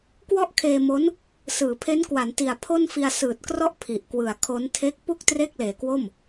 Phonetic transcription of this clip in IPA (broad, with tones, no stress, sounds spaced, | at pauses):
k w ɔ˥˩ ʔ kʰ eː˧ m o˦˥ n | s ɯː˩˦ pʰ e˦˥ n k w a˩˦ n t i˨˩ a̯ pʰ o˥˩ n f i˧ a̯ s ɯː˨˩ t̚ k r ɔ˥˩ ʔ pʰ i˨˩ ʔ k w ɯ˨˩ a̯ kʰ o˦˥ n tʰ e˦˥ k̚ p u˥˩ k̚ t r e˥˩ k̚ l eː˨˩ k w o˥˩ m